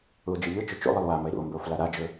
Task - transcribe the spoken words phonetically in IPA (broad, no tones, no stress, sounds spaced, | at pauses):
u o̯ d͡ʒ ɯ ʎ ɯ t͡ʃ ɵ t͡ʃ ṵ lˠ i lˠ w a m ə e̯ ɾ ṵ o̯ m b ə o̯ f l a ɾ a d͡ʒ ɵ